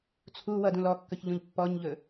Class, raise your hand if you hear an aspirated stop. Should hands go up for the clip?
yes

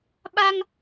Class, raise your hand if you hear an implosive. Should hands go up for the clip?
yes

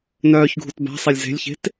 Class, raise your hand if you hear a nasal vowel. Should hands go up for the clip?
no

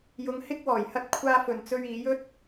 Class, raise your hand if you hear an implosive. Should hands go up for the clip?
no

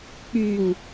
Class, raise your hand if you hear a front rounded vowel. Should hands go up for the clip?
yes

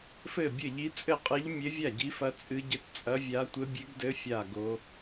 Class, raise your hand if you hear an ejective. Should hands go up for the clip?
yes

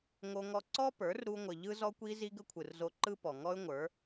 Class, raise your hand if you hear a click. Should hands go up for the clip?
yes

